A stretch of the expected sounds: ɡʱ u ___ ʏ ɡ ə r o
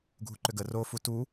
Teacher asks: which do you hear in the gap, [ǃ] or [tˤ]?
ǃ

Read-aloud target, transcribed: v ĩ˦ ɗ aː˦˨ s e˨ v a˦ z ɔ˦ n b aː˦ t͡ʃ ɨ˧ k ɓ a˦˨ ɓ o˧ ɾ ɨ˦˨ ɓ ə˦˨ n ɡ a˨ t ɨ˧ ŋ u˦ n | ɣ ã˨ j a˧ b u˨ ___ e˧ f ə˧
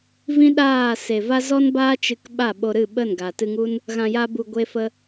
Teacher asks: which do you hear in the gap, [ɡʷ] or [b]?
ɡʷ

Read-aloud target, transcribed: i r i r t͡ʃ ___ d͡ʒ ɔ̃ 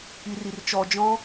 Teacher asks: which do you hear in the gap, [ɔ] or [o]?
ɔ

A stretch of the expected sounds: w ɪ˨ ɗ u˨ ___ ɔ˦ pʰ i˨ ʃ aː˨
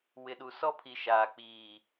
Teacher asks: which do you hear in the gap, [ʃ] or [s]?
s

